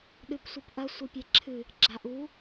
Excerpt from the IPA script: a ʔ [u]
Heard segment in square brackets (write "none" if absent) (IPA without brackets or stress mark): u